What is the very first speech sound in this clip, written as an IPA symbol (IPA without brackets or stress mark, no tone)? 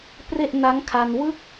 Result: p